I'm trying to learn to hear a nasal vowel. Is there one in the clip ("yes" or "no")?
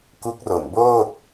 no